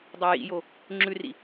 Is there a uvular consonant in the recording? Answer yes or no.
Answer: no